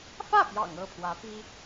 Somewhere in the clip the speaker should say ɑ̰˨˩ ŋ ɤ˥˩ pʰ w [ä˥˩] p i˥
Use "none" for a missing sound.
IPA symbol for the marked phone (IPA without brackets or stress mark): ä˧˥